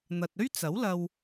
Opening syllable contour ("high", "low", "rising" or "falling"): low